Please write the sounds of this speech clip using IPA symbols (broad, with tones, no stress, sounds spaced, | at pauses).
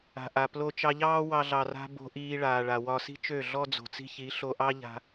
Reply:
a̤˨ ʔ a˨ p l o˧ t͡ʃ ɑ˧ ʎ ɑː˦ w ɑ˧ ɮ ɑ˨ r a̤˧ b o̤˧ ʔ iː˧ ɭ aː˨ ɭ a˨ w ɒ˧ s i̤˦ t͡ʃ ø˦˨ ɮ ɔ˦ d͡z o̤˨ t͡s i̤˦ ç i˨˦ ɬ o˧ ʔ ɑ˦ ʎ a̤˧